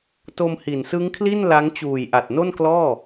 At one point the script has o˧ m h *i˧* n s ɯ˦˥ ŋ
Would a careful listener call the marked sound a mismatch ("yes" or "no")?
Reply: yes